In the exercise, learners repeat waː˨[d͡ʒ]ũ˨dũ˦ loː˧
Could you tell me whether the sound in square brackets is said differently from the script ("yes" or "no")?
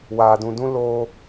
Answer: yes